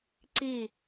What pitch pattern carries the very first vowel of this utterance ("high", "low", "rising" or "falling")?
falling